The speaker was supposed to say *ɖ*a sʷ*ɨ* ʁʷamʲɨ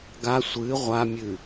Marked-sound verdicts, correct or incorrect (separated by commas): incorrect, correct